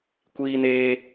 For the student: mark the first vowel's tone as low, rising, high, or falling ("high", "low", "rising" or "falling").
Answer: high